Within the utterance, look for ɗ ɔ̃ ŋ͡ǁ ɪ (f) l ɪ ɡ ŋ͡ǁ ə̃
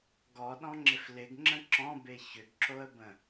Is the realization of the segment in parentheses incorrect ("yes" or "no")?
no